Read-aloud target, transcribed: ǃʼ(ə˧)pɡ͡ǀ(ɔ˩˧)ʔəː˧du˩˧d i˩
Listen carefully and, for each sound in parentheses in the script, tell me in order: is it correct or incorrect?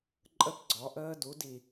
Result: correct, correct

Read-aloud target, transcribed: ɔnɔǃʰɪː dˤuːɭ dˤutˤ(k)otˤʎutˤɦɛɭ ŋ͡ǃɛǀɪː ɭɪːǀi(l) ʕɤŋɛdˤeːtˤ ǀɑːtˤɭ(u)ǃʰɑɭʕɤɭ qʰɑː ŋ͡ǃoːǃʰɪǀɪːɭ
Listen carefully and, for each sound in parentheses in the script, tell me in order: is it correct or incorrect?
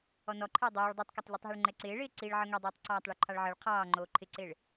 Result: correct, incorrect, correct

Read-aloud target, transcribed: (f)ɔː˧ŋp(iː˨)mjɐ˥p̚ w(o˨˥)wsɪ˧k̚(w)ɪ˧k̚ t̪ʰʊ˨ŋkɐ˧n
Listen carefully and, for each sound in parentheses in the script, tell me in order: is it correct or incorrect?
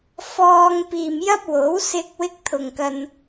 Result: correct, correct, correct, correct

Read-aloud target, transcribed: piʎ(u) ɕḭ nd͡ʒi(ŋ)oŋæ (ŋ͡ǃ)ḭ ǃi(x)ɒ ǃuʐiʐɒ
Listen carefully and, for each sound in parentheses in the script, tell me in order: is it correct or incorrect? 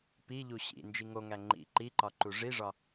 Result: correct, correct, correct, incorrect

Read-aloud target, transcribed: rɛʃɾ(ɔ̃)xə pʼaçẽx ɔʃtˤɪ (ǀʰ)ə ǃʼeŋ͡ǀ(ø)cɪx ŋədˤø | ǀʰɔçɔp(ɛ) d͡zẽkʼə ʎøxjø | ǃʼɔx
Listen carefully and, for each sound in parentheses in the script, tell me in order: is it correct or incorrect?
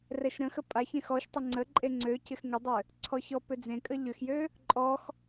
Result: incorrect, incorrect, correct, incorrect

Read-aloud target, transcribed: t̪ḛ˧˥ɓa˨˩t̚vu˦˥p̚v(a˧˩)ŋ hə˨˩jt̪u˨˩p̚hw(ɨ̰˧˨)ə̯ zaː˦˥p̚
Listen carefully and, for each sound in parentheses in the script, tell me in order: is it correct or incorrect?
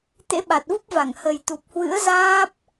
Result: correct, incorrect

